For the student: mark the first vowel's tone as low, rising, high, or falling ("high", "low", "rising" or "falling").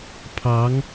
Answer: rising